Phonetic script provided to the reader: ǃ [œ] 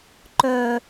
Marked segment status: correct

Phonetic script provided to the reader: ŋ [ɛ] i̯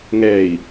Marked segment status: correct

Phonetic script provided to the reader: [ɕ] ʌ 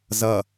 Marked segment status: incorrect: z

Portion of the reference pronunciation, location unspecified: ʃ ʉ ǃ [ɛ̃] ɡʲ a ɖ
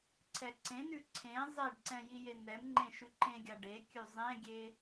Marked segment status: incorrect: ẽ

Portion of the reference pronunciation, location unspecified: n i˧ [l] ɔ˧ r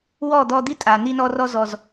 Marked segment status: incorrect: n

